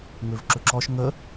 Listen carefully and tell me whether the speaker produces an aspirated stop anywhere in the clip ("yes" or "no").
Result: no